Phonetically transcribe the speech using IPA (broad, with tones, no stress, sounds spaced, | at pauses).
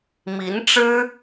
m i˧˥ n ʈ͡ʂ ɻ̩˥